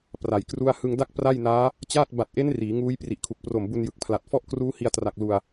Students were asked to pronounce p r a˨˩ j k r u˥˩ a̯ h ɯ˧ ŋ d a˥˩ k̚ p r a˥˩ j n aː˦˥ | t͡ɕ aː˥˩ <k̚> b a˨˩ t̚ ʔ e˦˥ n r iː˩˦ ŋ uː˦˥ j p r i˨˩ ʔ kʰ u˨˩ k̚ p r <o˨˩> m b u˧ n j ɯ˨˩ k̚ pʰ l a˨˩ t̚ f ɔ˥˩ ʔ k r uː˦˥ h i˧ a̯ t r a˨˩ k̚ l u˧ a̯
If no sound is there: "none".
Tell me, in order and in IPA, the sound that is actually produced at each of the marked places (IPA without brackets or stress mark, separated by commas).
t̚, o˨˩